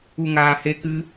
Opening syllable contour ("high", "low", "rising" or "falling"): low